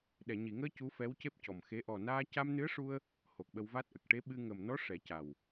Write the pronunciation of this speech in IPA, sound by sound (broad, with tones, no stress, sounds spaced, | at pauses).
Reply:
ɗ ɛ˨˩˨ ɲ i˨˩˨ ŋ əː˧ c u˧˥ f ɛ˧˥ w c e˦˥ p̚ c ɔ˨˩ m x e˧˥ ʔ ɔ˨˩ n aː˧ c a˧ m n ɨ˧˥ ə̯ ʂ u˧ ə̯ | h o˨˩ k̚ ɓ ə˧ w v a˦˥ t̚ ʔ ə˨˩ k̚ ʈ e˧˥ ɓ ɨ˧ ŋ ə˨˩ m n ɔ˧˥ ʂ ɛ˨˩˦ c a˨˩ w